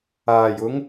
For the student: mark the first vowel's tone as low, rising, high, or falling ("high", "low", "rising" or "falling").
low